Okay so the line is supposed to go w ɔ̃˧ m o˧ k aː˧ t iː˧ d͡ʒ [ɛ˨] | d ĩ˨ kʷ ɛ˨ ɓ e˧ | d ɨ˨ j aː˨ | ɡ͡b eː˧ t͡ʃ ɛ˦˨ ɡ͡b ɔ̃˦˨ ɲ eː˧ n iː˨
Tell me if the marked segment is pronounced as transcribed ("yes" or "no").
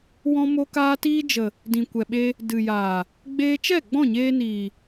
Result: no